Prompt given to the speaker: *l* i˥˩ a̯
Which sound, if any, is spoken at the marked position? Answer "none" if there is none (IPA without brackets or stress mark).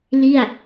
l